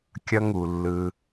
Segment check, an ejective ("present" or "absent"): absent